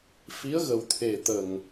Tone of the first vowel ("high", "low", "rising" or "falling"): rising